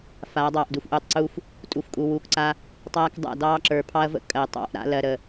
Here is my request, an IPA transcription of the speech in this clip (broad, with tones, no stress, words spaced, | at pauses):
faː˨˦ dˤɑː˨ʔdu˨fʔuː˨tˤǀuː˦f | tʼu˨fkʼu˨wuː˨kǀa˦ | tˤaː˦k dˤa̰˦˨ dɑː˦ǁə˞˨ pʰɑ˦ɐ̯və̰˦ kʼɜ˨tˤɑ̰˦ʔ ɾa̰˦lɜ˨ ɾə˨